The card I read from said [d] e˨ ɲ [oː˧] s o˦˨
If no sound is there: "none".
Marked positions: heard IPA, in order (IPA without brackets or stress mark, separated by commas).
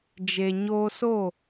d͡ʒ, oː˧